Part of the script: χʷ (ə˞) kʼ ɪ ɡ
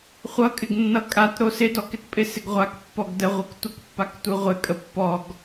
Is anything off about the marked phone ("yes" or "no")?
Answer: yes